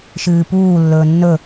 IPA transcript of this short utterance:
ʃ ɨː p uː lː ɵː nː ɵ

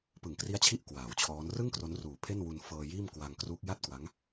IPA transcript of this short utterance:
p ɯ˩˦ ŋ k r i˦˥ a̯ t͡ɕʰ i˦˥ ʔ k w aː˩˦ w t͡ɕʰ ɔː˦˥ n r ɯ˥˩ ŋ k r o˦˥ n r uː˨˩ pʰ e˥˩ n w u˧ n f ɤː˧ j iː˥˩ m k w a˧ ŋ k r uː˦˥ k̚ j a˥˩ t̚ k w a˦˥ ŋ

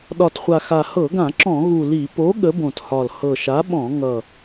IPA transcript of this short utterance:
ɗ ɒ˨˩ t χʷ a˨˩ x a˨˩ h ɤ˧˩˧ ɡ ã˧˩˧ ǁ ɔ̃˧˩˧ ɣ u˨˩ l i˧˩˧ p o˨˥ ɠ ə˨˥ b õ˨˩ t h ɒ˨˩ l h ɤ˨˩ ʃ a˨˥ ɓ ɔ̃˧˩˧ ŋ ʌ˨˩

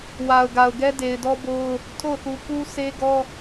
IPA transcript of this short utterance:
w a˨ ʊ̯ ɡ a˨ ʊ̯ ɡ ɛ˦ d e˨ ɪ̯ d ɔ˦ b o˦ ʊ̯ | tʰ o˦˨ ʊ̯ θ u˨ k u˦ sʰ e˦ ɡ ɔ˦

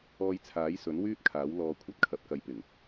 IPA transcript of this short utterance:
ɔː˧ j t͡sʰ aː˨˥ j s ɵ˨˥ n w yː˥ t̚ kʰ aː˨˥ w l ɔː˧ kʷʰ ɐ˥ t̚ kʰ ɐ˨˥ p̚ k ɐ˨˧ j p ɪ˨˩ ŋ

